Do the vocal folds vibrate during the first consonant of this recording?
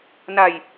yes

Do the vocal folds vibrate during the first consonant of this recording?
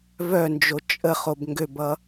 yes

